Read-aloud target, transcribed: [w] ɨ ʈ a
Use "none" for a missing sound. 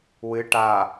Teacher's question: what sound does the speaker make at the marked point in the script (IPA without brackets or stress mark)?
w